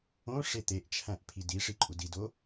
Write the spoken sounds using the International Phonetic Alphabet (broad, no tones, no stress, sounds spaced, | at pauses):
õ ʂ e t̪ e ʔ t͡ʃʰ æ̃ ʔ pʰ i d i ʂ i ǃʼ u d i d o